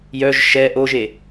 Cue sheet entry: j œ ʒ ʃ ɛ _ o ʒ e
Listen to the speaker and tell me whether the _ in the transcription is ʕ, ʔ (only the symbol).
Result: ʔ